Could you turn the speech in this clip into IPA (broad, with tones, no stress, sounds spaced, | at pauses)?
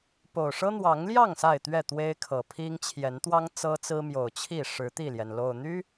p o˨˩ ʊ̯ ʂ ɤ˦ n̪ w ɑ˨˦ ŋ l j ɑ˥˨ ŋ s a˥˨ ɪ̯ t̪ ɥ ɛ˥˨ t̪ w e˦ ɪ̯ kʰ ɤ˨˩ pʰ i˦ ŋ t͡ɕʰ j ɛ˨˦ n t̪ w ɑ˦ ŋ t͡s ɤ˦ t͡s ɹ̩˦ m j o˨˩ ʊ̯ t͡ɕʰ i˥˨ ʂ ɻ̩˨˦ t̪ i˥˨ l j ɛ˩ n l o˨˩ ʊ̯ n̪ y˦